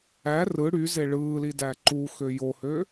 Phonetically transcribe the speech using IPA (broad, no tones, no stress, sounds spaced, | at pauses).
æ r ɯ ɽ y z e ɭ ɯː l i d æ ǃ u x ø j o h ø